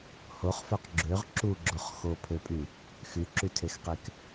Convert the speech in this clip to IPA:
h o χ f ø q ɡ͡ǁ ø ʁ ǁ u ɡ͡ǁ o χ x o pʰ ø pʼ y | x y ǁ y tʰ e x q e k

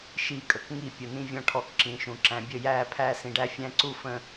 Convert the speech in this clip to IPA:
ʃ i˦˨ kʼ ə˨ k ŋ i˦˨ pʲ ʊ˨ n ĩ˦ vʲ ɔ̃˦ ʈʰ ɔ˦ k ǁ ĩ˨˦ ʃ ũ˨ ǁ æ̃˨ bʲ ə˦˨ j æː˦˨ pʰ æː˦ s ĩ˨ ɖ æ˦ fʲ æ̃˦ ǀ u˦ f ə̃˦

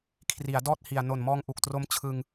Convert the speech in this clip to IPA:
kʰ r i˩˦ a̯ d ɔː˥˩ t̚ h i˨˩ a̯ n o˨˩ n m ɔː˧ ŋ ʔ u˨˩ k̚ t r o˦˥ m t͡ɕʰ ɯ˧ ŋ

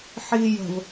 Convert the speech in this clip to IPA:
ħ iː j ə̤ v

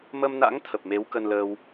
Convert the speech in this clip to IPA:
m ə˧ m n a̰˧˥ ŋ t̪ʰ ə˨˩ p̚ m e˨˦ w k ə˧ n l əː˧ w

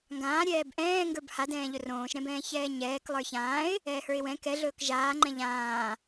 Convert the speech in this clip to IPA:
ŋ ɡ ãː ɾʲ ɛː b ʔ ɛ̃ː ŋ ɡ ə˞ b h a d ɛ̃ː ʎ ɵ r õː ʃ ɾ ɛ̃ b ɛ̃ː ç ɛː ɲ ɛː k lˠ ə˞ ç ãː ɪ̯ | ɛː h ə˞ ɪ̯ w ɛ̃ k ɛ ɮ ɵː k ʒ aː ŋ͡ǃ ɛ̃ ʎ ãː

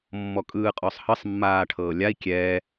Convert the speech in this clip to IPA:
mː ɔ kʼ ɯː qʼ ɔ sˤ h ɤ sˤ mː aː ʈʰ ɤː lʲ a i̯ kʲ ɛ

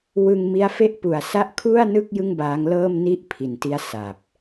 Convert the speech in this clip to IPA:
w ɯ˧ ŋ m i˦˥ a̯ f e˥˩ ʔ p u˨˩ a̯ s a˦˥ ʔ kʰ u˥˩ a̯ n ɯ˥˩ k̚ j ɯ˥˩ ŋ b aː˦˥ ŋ l ɤː˥˩ m n i˥˩ ʔ pʰ i˩˦ n t i˦˥ a̯ s a˨˩ p̚

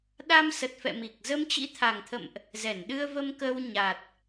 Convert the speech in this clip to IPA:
ɗ a˧ m s ə˨˩ t̚ f ɛ̰˧˨ m i˨˩ k̚ z ə˧ m t͡ɕ ḭ˧˥ t̪ʰ a˨˩ ŋ t̪ʰ ə̰˧˨ m ʔ | z ɛ˧˩ n ɗ ɨ˧ ə̯ v ə˧ m k ə˧ w ɲ a˨˩ t̚

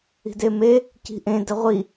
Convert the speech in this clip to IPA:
i̤ d e m e | c i̤ ʔ ẽ d ə ʁʷ i

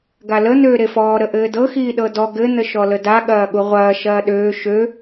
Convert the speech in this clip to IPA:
ɡ a l ə n̪ øː ɾ e f ɔː ɾ ə ʔ ɘː d ɤ x iː ɗ ɤ d ɔ ɡ ɘ n̪ ə ʃ ɔ l ə d a ɠ ɐː ɠ u ʁʷ ɐː ʃ ɐː ɗ øː ʃ ø

